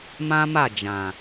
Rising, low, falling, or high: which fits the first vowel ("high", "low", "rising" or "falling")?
high